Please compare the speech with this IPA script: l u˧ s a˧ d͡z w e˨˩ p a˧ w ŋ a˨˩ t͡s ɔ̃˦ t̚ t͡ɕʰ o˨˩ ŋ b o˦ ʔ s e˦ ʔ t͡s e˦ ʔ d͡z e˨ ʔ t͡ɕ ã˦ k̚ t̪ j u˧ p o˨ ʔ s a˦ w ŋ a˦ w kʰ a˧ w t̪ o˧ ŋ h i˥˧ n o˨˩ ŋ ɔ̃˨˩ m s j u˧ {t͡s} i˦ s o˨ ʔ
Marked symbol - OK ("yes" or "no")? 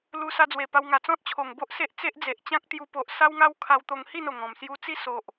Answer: yes